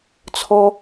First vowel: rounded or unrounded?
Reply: rounded